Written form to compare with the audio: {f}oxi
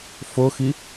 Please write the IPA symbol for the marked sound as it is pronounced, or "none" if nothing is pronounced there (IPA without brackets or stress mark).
f